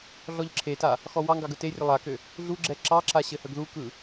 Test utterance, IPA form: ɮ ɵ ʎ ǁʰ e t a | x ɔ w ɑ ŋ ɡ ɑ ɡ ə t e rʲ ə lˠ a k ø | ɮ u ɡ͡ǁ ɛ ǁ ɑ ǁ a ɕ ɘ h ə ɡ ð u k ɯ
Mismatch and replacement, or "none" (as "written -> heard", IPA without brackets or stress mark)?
ɵ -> ɔ